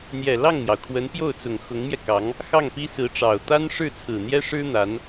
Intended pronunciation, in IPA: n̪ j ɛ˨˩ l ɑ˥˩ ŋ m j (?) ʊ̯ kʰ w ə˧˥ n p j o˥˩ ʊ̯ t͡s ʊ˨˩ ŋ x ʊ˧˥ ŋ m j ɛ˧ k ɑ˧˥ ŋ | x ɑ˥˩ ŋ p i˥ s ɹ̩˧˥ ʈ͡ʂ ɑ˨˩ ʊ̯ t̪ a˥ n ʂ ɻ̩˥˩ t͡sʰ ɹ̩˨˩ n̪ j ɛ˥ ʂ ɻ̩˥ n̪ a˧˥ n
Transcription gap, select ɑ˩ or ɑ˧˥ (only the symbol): ɑ˩